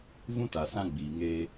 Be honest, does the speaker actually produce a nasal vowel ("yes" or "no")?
yes